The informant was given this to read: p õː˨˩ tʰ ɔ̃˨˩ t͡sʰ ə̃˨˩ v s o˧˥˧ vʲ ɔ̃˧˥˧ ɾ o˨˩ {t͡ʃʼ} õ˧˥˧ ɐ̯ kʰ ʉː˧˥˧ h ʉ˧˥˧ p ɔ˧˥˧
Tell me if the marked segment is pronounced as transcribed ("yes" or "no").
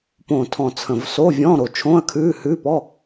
no